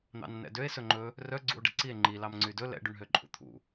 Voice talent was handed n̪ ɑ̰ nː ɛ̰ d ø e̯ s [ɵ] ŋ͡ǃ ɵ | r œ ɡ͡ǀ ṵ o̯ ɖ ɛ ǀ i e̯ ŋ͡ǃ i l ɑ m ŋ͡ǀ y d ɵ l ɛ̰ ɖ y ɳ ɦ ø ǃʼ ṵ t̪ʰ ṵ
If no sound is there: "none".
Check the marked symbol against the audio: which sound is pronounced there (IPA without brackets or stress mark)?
ɵ